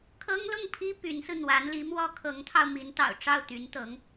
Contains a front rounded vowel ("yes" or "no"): yes